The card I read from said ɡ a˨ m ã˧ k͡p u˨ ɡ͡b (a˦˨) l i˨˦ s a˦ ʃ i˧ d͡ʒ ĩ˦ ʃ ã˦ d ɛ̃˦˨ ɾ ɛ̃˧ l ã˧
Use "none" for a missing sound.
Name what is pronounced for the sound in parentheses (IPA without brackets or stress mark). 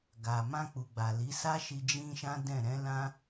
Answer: a˨